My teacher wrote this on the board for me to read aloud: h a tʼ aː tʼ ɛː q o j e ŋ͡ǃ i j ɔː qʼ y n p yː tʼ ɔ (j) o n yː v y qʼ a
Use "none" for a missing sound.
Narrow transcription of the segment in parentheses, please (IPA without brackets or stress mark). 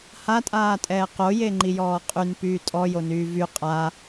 j